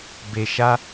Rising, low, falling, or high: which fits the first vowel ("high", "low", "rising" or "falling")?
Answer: low